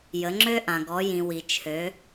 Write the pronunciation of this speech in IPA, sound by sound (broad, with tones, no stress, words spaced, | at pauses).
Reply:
jə˩˧ŋ͡ǁø˧ʔã˩ ɡɔ˩˧jĩ˩wi˩t͡ʃʰø˩˧